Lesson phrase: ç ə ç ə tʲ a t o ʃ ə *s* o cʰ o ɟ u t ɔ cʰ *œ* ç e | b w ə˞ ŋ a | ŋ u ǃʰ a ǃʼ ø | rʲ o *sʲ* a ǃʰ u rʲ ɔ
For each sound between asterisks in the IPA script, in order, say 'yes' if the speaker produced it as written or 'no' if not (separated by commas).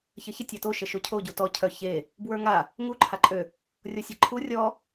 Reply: no, yes, yes